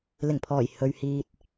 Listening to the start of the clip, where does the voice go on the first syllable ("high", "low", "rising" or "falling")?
low